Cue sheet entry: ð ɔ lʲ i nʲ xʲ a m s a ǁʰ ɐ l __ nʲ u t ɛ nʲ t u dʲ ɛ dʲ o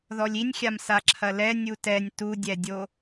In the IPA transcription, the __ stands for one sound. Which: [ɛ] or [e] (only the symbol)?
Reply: ɛ